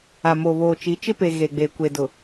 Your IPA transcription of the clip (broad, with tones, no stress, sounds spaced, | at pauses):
a˨ m o˨ β oː˨ t͡ʃ i˨˦ t͡ʃ ɪ˦ p e˨ ɣ e˨ ɡ͡b eː˨ kʷ e˨ d ʊ˨